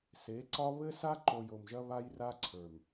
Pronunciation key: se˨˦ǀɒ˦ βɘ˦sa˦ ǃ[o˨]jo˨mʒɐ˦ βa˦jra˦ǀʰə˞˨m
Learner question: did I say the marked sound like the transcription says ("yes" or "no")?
yes